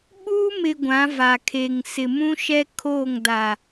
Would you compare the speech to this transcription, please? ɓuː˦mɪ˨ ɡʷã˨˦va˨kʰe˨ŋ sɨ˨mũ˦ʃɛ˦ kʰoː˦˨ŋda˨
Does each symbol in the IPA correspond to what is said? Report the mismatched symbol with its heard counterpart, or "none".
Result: ɨ˨ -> ɪ˨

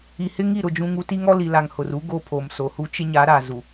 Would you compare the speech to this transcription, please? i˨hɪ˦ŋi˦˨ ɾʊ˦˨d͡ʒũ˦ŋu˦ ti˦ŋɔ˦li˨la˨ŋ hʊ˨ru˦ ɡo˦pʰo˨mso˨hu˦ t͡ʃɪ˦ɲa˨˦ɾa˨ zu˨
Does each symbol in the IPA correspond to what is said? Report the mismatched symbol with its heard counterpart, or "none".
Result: none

